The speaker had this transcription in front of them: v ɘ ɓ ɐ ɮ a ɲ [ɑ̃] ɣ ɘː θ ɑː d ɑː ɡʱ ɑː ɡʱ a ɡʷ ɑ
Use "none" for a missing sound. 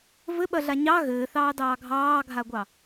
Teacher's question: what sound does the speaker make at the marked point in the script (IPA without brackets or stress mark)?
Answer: ɑ